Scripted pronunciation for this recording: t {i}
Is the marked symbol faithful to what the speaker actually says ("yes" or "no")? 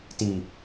yes